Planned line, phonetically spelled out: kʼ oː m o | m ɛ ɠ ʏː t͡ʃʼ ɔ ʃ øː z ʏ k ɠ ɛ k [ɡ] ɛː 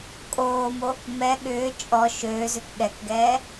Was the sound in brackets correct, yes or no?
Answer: yes